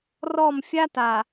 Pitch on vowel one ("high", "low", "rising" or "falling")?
falling